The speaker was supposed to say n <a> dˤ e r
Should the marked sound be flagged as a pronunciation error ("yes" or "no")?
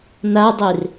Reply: no